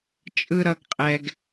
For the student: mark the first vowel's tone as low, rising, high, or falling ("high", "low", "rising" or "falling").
high